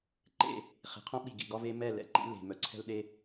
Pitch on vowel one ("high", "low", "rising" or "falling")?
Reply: falling